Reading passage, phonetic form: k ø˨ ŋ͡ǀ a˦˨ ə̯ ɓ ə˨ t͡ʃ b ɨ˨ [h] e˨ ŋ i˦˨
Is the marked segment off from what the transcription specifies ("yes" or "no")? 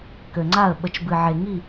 yes